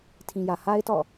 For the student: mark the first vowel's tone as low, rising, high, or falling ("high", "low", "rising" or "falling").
low